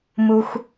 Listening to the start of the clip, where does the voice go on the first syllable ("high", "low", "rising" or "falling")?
high